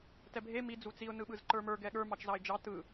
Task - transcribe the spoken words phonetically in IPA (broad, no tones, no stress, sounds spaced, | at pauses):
t ɛ bʱ e m i d͡z u t͡s i ʊ̯ n ɯ ɓ ɯ z ǃ ə˞ m ə˞ ɡ ɛ ɠ ə˞ m ɑ t͡ʃ z ɑ ɪ̯ d͡ʒ ɑ t ɯ